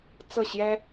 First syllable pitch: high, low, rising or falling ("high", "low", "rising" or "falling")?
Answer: falling